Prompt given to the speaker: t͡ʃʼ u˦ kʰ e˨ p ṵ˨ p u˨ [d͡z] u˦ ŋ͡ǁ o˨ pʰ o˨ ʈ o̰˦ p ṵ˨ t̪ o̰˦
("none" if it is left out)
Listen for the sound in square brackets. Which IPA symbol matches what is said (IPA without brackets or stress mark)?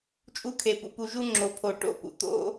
ʒ